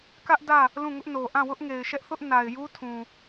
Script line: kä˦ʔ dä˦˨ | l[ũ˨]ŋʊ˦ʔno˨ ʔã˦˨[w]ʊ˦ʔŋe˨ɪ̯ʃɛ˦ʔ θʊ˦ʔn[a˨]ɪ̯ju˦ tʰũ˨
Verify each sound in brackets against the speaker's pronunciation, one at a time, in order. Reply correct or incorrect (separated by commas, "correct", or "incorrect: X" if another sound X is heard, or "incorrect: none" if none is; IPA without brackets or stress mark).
incorrect: ũ˦˨, correct, correct